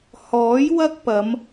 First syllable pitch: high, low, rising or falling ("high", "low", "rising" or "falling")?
rising